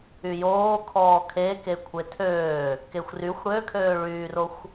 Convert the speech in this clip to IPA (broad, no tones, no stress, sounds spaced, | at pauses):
y j oː kʰ ɔː kʰ e k e kʷʰ e tʰ øː | k e xʷ r y xʷ ɽ ø kʰ øː ɭ yː r o xʷ